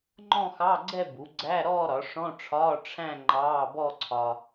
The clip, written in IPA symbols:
ŋ͡ǃɔ̃˥˧xɑ˧˥˧ɡ͡ǀɛ˥˧bu˩˥ ɡ͡ǀæ˧˥˧ ɾɔː˥˧ɾɒ˩˥ ʂɔ̃˧˥˧ʈ͡ʂʰɒː˧˥˧ ʈ͡ʂʰæ̃˥˧ ŋ͡ǃɑː˧˥˧bɔ˥˧ǀʰɒ˧

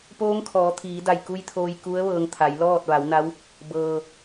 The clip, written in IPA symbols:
poː˧˥ŋkʰɔː˩˧t̪ʰiː˩˧da˧˩j ku˧˥jt̪ʰoː˧j ku˧˥ə̯ʋɤː˧ŋt̪ʰa˩˧jlɔː˥˨t̚ ʋa˩˧wna˧˥w | bɤː˩

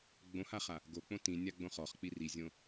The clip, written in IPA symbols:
ɡ͡bõhaχa | ɡok͡põ tĩnʲaɡ͡bõ χɔχk͡pi rizʲõ

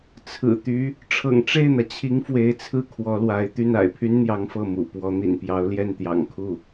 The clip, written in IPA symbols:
t͡sʰɹ̩˨˩t̪y˧˥ | ʈ͡ʂʰɤ̰˨˩ŋʈ͡ʂe˥˩ɪ̯n̪ä˩t͡ɕʰi˧˥ŋ fwe˧˥ɪ̯t͡sʰɹ̩˥˩ kʰwɔ˧˥lwa˧˥ɪ̯ t̪y˥˩na̰˨˩ɪ̯pʰy˥nn̪jɑ˧˥ŋ fɤ˥˩mṵ˨˩ pwɔ˧˥n̪ḭ˨˩n pjɑ˧˥ʊ̯ljɛ˥˩nt̪jɑ̰˨˩ŋ kʰu˥˩

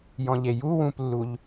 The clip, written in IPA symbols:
jɔ̃ʎeju wũplːuʎ

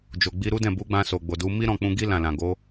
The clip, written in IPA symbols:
d͡ʒo˨ɡ͡bi˧ ɾu˦dɛ̃˦˨ bu˨˦ɡ͡bã˧ so˨ɡ͡bo˨du˨˦ mi˦ɾɔ̃˦˨k͡pũ˧ɡi˦ lã˦˨lã˨ ɡo˨˦

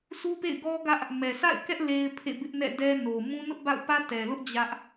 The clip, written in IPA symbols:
sʰu˦pḛ˦˨ɪ̯ɡɔ˦ɡä˦ʔ | mɛ˨sa̰˦˨ɪ̯kɛ˦ʔ le˦ɪ̯pʰḛ˦˨ bɪ˦ʔnɛ̰˦˨dɛ˦ no˨mũ˦ nʊ˦ʔba̰˦˨ʊ̯pä˦ tɛ˨lʊ˦ʔ d͡ʑä˦ʔ

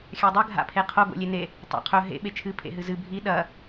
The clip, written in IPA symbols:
xʲadˤɨ ɡʱa̰pʰeqʰo ɡo̰lʲene | tˤa̰qʰɵ ɦḛ ɓet͡ʃʰɨ pʰḛɦɨzɨ bʱi ɗɐ

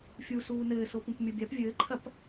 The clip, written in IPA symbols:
fʲusuː nɘːsopũp mʲobʲap vʲɘːǃʰɐp

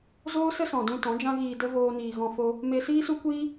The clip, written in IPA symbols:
zoː˦sə˦sɔ̃˨dũ˧ tɔ̃˨˦d͡ʒã˦ɣiː˧də˦ voː˦niː˧ɣɔ̃˦ fo˦ | me˧siː˦su˦ kʷiː˦

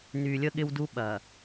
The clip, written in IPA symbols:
ny˨lʲə˦ ɠɪ˦wdu˦ ɓɐ˨

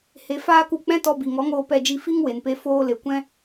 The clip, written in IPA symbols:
he˨ faː˧k u˨k͡pɛ̃˦ tɔ˧bi˨ŋɔ˨˦ŋoː˧ pɛ˧d͡ʒi˧ fi˦ŋwe˨npe˧ foː˧le˨ kʷɛ̃˦

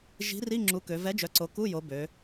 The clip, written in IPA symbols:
ʒi̤˨˥ri˧˥˧ ŋ͡ǁu˨˥kø˩˧ vɛ˨˥d͡ʒœ˩˧ǀo˩˧ ku˧˥˧jo˩˧ bø˩˧

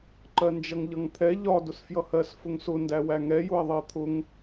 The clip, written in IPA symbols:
ǃɜnd͡ʒʌŋʎʌŋt̪ʰɛ ʎɒ dʊsfjʌhɜs fʊŋsʊ ndæwæŋɛ jʊɐ̯ðˤɜt̪ʰʊŋ

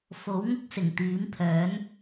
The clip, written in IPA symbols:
fo˨˥wŋʊ˥k̚ sɪ˨˩ŋt̪iː˨˥mpʰœː˨˥n

